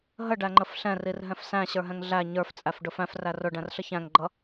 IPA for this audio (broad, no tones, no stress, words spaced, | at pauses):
ɦəɖæŋ͡ǃəf ɬɛ̃rirɦɛ̃f sæ̃ɕə˞ɦɛ̃ŋ ɮæ ɲə˞ft͡sʼæfɖʊ fæ̃fræ rʊɖæ̃rɬə çæ̃ŋɡ͡ǃʌ